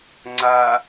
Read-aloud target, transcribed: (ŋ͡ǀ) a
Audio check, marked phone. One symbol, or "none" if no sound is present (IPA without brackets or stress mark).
ŋ͡ǀ